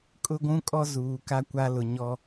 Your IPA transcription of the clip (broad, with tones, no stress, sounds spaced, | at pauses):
kʼ ʊ˦ ɡʷ ũ˦ kʼ ɔ˦ z uː˨ k a˦ kʷ a˦ l ʊ˨ ɲ ɔ˦